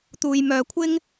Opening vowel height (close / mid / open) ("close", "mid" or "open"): close